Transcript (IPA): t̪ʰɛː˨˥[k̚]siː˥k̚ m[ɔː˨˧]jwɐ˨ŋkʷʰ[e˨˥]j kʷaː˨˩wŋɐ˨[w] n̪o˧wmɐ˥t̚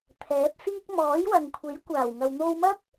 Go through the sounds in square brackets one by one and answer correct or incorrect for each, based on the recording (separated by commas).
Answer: incorrect, incorrect, correct, correct